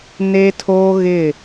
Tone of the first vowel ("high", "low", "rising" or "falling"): high